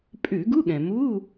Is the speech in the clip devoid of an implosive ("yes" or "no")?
no